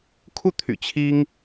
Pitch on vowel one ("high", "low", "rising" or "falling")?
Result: falling